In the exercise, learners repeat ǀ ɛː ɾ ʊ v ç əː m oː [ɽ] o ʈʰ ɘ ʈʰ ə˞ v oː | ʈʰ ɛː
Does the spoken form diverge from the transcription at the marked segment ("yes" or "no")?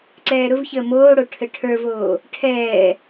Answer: no